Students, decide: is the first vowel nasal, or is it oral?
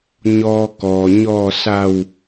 oral